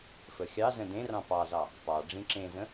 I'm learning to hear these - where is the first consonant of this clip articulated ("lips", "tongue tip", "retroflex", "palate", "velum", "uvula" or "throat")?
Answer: lips